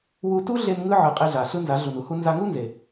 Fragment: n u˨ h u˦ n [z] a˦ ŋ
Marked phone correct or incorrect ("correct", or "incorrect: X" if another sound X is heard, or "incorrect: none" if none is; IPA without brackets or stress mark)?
correct